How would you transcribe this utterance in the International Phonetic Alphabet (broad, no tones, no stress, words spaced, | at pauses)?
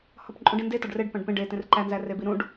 hɒpǃʼũɖĩnde tɒɖreɖ pæ̃ɖpẽ ɖe tẽrǃæ nzærebiɾũɖ